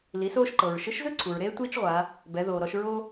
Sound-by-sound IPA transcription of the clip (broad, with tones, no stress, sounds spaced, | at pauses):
l i˩˧ s oː˧ ʃ ǃ ɤ˩ ɹ ʃ ɯ˧˥ ʃ z ɯ˥ ǀʰ u˩ ɹ ɾ eː˥ tʷ iː˥ t͡ʃ ʁʷ a˩˧ | b ɛ˩˧ ð oː˩ ɾ ɔ˧ ʃ ɹ o˥